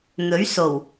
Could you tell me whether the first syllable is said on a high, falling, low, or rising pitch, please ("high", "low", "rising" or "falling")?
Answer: rising